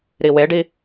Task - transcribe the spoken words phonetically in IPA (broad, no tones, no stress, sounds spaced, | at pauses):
ɾ i w e ɖ i